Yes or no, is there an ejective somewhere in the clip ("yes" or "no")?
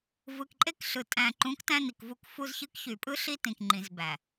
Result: yes